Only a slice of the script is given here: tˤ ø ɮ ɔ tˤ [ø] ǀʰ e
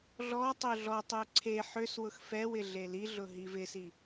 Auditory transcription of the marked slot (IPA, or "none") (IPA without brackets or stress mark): ø